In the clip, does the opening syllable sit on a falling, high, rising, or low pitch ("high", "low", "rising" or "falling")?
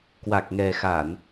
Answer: low